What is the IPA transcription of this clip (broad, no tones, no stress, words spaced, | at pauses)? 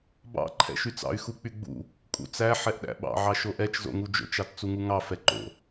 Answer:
bɑ̰ ǃʰɛ̰ʃyt͡sɑ̰y̯ xuk͡pyɡ͡bṵ | kʼṵt͡sæ ħɛʔɗæ̰ɓɑ̰ ʕɑʃoʔɛt͡ʃ zo̰ŋud͡ʒo̰t͡ʃ ɑtt͡suŋuŋɑ fɛǃo̰